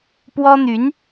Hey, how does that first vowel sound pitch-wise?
high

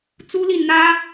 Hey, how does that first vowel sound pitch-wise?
high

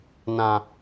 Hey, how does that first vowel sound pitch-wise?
low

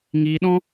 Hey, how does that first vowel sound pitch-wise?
high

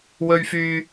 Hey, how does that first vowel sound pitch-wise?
low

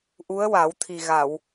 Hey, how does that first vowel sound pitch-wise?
rising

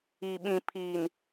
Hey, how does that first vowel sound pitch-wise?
low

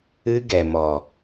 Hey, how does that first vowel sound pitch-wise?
high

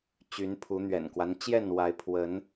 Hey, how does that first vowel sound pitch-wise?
rising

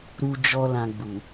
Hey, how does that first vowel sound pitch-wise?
high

